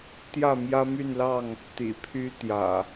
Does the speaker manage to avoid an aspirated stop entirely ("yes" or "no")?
no